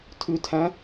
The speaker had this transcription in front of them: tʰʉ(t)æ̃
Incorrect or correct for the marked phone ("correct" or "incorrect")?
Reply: incorrect